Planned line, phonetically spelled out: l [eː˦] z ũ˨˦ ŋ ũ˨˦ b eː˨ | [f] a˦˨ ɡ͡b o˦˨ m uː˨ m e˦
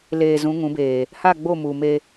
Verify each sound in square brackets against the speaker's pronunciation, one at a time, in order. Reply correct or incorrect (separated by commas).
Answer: incorrect, incorrect